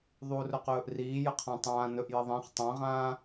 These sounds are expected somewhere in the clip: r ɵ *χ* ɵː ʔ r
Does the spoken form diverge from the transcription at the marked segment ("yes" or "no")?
yes